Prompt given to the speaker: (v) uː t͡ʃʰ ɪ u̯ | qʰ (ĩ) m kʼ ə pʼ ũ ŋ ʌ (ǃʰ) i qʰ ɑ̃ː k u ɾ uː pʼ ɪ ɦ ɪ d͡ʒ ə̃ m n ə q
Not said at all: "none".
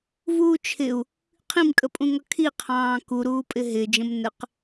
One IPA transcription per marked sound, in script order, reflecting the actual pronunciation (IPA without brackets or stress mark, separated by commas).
v, ĩ, kʰ